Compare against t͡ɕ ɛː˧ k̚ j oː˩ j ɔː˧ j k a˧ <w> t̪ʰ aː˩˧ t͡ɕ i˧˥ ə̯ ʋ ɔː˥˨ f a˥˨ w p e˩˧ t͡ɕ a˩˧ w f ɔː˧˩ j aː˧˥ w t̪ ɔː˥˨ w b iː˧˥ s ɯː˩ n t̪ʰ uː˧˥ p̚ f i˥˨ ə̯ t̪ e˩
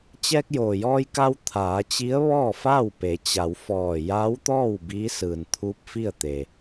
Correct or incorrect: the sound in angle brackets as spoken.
correct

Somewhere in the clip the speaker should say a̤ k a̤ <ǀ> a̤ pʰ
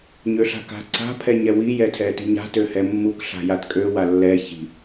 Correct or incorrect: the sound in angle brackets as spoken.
correct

